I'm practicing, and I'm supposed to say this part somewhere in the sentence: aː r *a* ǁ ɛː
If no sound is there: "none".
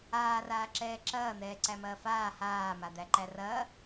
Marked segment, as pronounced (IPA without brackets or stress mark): aː